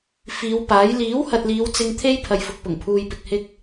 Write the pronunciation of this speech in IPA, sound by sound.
f iː˨˧ w p aː˨˥ j l iː˨˥ w h ɐ˨ t̚ l iː˨˧ w t͡s ɪ˧ ŋ t̪ʰ e˥ j pʰ ɐ˨ j f ʊ˨ k̚ p ʊ˨˩ ŋ pʰ uː˨ j p ɪ˨ k̚ h ɪ˥ k̚

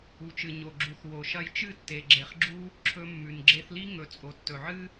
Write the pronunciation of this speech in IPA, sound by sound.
u˨ t͡ʃ ɨ˨ ɲ o˨ ɡ͡ǁ u˨ θ w o˨ ʃ ɐ˧ j t͡ʃ ɨ˦˨ tː e˨ ɡ͡ǁ e˨ χ ɡ͡ǁ u˦ | ǁʰ ɵ˧ mː ʉ˨ n ɡ͡ǁ e˧ θ l i˦ ŋ ɵ˨ t͡sʼ o˨ tː ɵ˨ ʕ ɨ˦

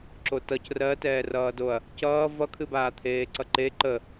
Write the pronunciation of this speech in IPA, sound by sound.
ǁ o t ʌ c r ɜ t ɛː r ʌː d o ɐ̯ | c ʌː v ʌ kʰ ɨ b aː t̪ʰ eː ǀ ʌ ǃ e ǃ ə

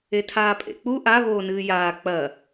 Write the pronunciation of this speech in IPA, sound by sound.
e tʰ aː pʼ ḛ k͡p u ʔ a β oː n ɨː j aː k͡p ɐ

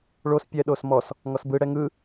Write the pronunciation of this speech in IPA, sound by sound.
ɭ o s pʲ ɛ ɗ o s m ɔ s | ŋ ɔ s b ɯ ɽ ɛ ŋ ɯ

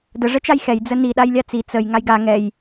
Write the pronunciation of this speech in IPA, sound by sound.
d ə ʐ ɛ t͡ʃ a j x ɛ j d͡z ə n i ɗ a j lʲ a t͡s i t͡s ə j ŋ a j ɡ a ŋ ɛ j

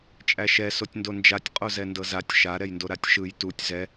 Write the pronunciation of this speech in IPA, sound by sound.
t͡ʃʼ æ ʃ ɛ s o tʲ n d o n d͡ʒ a tʲ qʼ o z ɛ n d ɤ z a tʲ ʃ a ɾ ɛ j n d o ɾ a tʲ ʃ ɯ j t u tʲ z ɛ

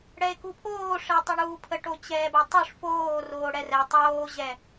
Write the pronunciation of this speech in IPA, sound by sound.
ɽ ɛ e̯ k u pʰ oː ʂ ɪː tˤ ə ɳ uː pʰ ə ʈ o t͡ɕ ɛː b ə tˤ u ʂ f oː r oː ɽ ɛ r ɛ tˤ oː ʑ ɛ

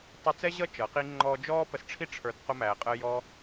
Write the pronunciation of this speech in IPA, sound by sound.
tˤ u˧ t͡s ɛ˦ ʑ ʌ˦ t͡ʃ ʌ˨˦ q i˦ ŋ͡ǃ ɔː˧ d͡ʒ ɔː˦ p ə˧ s ʈ͡ʂʰ i˦ ʈ͡ʂʰ ə˞˧ d q ʊ˧ m æː˨ qʼ ə˧ j ɔ˧

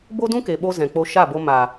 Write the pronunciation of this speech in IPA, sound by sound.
b o˦ d ũ˦ k e˨ ɓ o˧ z ɛ̃˨ k͡p o˧ ʃ a˦˨ b o˧ m a˨

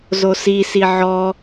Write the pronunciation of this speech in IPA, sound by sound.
z o s i s i ʕ ɔ

